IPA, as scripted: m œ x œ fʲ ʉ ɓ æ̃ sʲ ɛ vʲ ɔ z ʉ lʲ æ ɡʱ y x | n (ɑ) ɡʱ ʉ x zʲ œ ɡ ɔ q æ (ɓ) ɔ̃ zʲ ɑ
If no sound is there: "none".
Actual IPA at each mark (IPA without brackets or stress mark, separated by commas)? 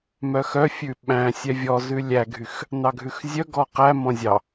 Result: ɑ, m